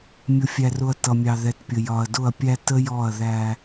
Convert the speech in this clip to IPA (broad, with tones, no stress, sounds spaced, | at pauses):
mʲ ʊ˨ fʲ æ˨ r ʊ˨ ɐ̯ t ʌ˨ mʲ ɑ˨ ð ɛ˨ t pʲ ə˨ j ɒ˨ ɐ̯ d ʊ˦˨ ɐ̯ pʲ æ˦ t ə˦ j ɔ˦˨ ɐ̯ ð æ˦